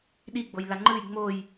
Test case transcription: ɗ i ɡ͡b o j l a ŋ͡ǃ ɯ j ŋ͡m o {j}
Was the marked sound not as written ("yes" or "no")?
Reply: no